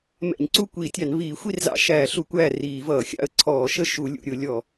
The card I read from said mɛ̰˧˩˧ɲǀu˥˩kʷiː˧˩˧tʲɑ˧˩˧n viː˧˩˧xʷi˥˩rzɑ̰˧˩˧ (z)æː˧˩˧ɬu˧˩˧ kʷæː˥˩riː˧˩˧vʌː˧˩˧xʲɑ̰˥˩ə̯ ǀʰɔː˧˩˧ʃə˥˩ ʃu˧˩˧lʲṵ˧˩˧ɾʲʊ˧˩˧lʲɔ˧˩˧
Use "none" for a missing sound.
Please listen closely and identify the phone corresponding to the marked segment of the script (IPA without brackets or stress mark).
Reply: ʃ